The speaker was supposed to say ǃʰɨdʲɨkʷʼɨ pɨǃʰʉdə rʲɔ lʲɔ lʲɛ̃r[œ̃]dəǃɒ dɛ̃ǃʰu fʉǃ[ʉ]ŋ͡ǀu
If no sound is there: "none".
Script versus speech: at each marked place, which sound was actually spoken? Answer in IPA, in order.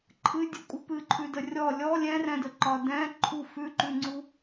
ɛ̃, ʉ

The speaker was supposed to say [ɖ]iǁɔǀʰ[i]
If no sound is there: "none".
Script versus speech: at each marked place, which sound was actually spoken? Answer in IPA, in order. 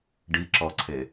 ɖ, e

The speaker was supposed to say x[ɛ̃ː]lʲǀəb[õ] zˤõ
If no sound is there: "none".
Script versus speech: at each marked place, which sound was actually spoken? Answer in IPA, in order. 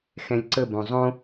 ɛ̃, õ

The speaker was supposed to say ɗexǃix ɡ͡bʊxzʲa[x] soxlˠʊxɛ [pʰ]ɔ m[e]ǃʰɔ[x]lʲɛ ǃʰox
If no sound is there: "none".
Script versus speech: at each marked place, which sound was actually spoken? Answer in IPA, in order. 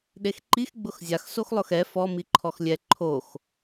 x, f, i, x

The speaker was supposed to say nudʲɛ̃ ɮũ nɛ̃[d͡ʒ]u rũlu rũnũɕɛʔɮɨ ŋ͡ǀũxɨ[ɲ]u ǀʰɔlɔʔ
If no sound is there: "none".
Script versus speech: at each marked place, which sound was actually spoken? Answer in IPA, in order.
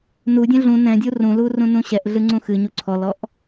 dʲ, ɲ

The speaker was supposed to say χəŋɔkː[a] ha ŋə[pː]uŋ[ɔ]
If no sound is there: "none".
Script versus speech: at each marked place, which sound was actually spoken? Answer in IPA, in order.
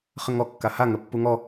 a, pː, ɔ

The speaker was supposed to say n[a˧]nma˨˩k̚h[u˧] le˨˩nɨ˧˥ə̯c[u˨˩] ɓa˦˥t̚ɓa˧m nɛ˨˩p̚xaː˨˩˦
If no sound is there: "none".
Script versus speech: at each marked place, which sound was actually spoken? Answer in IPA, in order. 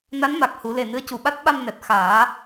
a˧˥, u˨˩˦, u˨˩

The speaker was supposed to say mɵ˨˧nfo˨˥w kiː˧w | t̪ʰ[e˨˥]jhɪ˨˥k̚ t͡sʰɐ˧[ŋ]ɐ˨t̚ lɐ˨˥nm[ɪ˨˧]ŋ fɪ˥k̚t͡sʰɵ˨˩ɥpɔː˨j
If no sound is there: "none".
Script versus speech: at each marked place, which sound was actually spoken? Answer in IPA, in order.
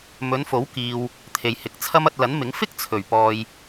e˨, m, ɪ˨˥

